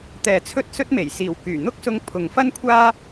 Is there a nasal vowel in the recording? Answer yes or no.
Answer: no